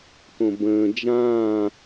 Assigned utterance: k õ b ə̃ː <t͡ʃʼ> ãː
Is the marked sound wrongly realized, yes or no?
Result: yes